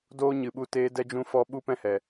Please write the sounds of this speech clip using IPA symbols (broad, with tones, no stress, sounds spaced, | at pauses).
d oː˦ ɲ ɨ˨ ɓ u˧ t eː˧ d ɛ˧ d͡ʒ ũ˧ f ɔ˧ ɓ u˦ p ɛ̃˦ h ɛ˨